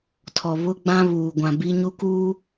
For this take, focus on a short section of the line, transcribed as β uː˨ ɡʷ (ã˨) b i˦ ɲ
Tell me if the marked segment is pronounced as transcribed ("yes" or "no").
yes